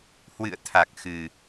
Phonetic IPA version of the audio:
h w ɨ̰˧˨ ə̯ t̪ʰ a˨˩ k̚ x ɨ˨˩

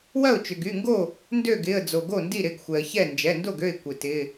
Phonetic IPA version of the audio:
w ɐ˥˩ ʊ̯ t͡ʃ ʏ˩ ɡ y˩˧˩ ŋ ɡ o˥˩ | n d ø˥˩ ɡ ɪ˩˧˩ ə̯ d͡z o˩ ɡ o˥˩ n d i˥˩ ɾ ɪ˩˧˩ ɡ xʷ ɛ˩ ə̯ ç ɛ˥˩ n d͡ʒ ɛ˩˧˩ n d o˥˩ ɡ ø˥˩ ɪ̯ kʷ ɪ˩ t ɪ˩˧˩

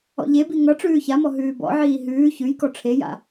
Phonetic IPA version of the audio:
ɔ̰ ʎ e b i ŋ ʌ ʈ͡ʂ ʉː ç a m ɔ ɦ ʉː b ɔ̰ ʕ iː ɦ ʉː ç ʉ j k ɔ ʈ͡ʂʰ e j a̰

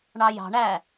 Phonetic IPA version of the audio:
ɳ ɑ j ɑ̤ ɳ æ

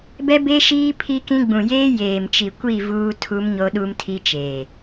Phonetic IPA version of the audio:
b ɛ˦ b e˦ ʃ iː˦ pʰ i˦ k ĩ˦ ɡ͡b ũ˨ j eː˦ j eː˨ m t͡ʃ i˨ kʷ i˦˨ v uː˦ tʰ u˦ m ɲ o˦ ɗ u˦ m tʰ i˦ t͡ʃ eː˨

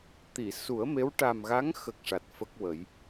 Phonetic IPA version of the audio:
t̪ i˨˩˨ s u˨˩˦ ə̯ m e˧˥ w ʈ a˨˩ m ɣ a˧˥ ŋ x ə˨˩ k̚ ʂ a˨˩ t̚ f ə˦˥ k̚ w ə˨˩˦ j

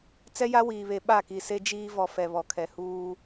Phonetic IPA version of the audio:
t͡s ɛ˦ j a˦ w iː˨ β e˨ ɓ a˦˨ k i˨ s e˦ d͡ʒ iː˦ v ɔ˨ f ɛ˨ β ɔ˨ kʰ ɛ˨ h uː˦

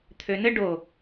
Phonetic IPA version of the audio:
t̪ʰ ø n ɘ ɖ o

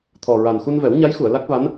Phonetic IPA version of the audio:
t̪ʰ ɔ˨˩ ɹ a˨˩ n x u˧ n v ɛ˨˩˦ w ɲ a˧˥ j x u˨˩˨ ə̯ l a˦˥ k̚ v a˧˥ n

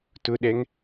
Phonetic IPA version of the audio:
t ʊ ɗ ɛ ŋ

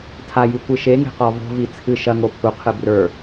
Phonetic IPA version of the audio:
tʰ a j i kʷ ɨ ʃ e ŋ e̤ q ɔ v o̤ v i t͡sʰ ɨ ʃ ɐ ŋ o pʰ u qʰ ɨ b r ə˞

